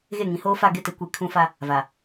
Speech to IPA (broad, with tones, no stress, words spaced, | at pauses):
ɣe˦˨ŋĩ˨˦ hoː˦fa˦˨ ɡɪ˦˨ te˦kʷi˦˨ kʰũ˦fa˦ | va˨